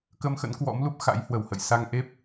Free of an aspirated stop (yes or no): yes